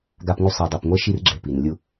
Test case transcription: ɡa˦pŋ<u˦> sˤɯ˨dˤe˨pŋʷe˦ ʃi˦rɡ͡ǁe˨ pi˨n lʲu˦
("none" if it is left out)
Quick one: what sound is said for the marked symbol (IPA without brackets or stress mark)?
u˦